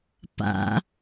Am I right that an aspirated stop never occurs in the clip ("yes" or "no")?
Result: yes